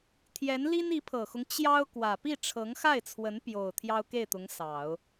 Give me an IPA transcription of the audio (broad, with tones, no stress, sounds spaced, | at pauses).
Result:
t̪ʰ j ɛ˧˥ n l i˥ n i˧˥ pʰ ɤ˨˩ x ʊ˦ ŋ t͡ɕ j ɑ˥ ʊ̯ k w ä˨˩ p i˥˩ ʈ͡ʂʰ ɤ˧˥ ŋ x a˥˩ ɪ̯ t͡sʰ w ə˧˥ n p j o˨˩ ʊ̯ t̪ʰ j ɑ˥ ʊ̯ k e˥˩ ɪ̯ t̪ ʊ˧˥ ŋ s ɑ˨˩˦ ʊ̯